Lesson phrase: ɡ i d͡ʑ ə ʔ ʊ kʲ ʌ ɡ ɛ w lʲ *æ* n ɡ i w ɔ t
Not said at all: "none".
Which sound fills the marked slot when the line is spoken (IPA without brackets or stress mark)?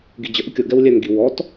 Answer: æ